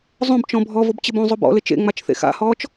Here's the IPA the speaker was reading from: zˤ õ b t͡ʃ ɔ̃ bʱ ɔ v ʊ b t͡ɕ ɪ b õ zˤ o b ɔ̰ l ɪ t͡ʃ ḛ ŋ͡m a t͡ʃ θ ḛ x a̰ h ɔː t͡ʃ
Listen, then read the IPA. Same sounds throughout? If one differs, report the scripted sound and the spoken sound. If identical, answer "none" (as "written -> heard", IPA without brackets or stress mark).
none